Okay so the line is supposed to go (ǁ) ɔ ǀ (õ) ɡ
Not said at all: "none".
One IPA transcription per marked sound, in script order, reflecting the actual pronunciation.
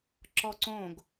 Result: ǁ, õ

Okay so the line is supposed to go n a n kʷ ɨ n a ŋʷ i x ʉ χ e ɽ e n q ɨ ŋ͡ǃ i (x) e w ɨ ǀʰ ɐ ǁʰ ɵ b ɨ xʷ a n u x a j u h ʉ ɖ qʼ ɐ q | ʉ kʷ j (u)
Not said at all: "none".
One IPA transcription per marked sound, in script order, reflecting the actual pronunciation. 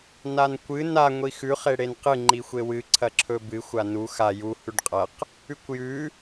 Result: xʷ, ʉ

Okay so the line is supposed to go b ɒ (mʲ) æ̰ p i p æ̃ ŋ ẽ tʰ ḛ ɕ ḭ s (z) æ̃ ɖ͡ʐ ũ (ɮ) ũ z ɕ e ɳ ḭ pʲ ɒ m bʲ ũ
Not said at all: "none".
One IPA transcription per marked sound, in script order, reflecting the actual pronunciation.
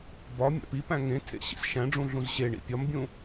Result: mʲ, ʃ, ɮ

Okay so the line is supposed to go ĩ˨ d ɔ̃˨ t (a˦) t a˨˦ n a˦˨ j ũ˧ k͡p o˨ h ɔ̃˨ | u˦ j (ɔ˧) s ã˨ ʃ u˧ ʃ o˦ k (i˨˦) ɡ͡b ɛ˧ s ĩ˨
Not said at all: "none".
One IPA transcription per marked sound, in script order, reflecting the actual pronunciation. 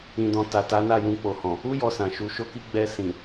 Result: a˨, ɔ˧, i˦

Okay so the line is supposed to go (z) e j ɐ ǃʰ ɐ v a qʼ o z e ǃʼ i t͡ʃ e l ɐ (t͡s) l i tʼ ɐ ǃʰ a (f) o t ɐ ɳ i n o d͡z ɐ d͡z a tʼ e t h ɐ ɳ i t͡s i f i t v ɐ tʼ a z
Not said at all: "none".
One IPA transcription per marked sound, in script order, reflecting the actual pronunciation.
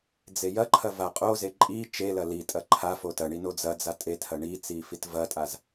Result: d͡z, none, f

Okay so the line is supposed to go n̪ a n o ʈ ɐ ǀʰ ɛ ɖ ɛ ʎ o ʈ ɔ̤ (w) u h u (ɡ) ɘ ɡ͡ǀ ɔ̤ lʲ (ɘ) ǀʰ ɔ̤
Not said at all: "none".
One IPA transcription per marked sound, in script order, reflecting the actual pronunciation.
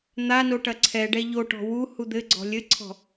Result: w, d̪, ɘ

